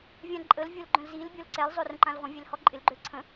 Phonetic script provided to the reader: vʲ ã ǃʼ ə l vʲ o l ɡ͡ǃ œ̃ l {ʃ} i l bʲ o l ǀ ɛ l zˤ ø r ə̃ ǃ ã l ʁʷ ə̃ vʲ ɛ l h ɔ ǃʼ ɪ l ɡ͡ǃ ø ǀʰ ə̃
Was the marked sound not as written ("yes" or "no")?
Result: yes